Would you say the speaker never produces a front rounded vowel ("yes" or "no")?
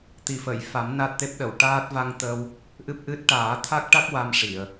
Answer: yes